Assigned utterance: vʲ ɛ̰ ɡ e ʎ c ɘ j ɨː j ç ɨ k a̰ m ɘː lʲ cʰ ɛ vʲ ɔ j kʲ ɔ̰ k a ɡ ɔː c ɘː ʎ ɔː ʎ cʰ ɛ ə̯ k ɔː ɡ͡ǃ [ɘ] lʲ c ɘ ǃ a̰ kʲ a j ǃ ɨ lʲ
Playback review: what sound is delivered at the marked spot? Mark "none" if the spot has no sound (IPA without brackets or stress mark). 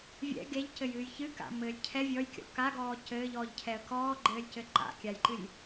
ɘː